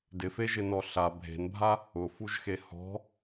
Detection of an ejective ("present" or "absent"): absent